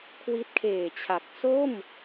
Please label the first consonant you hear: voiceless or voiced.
voiceless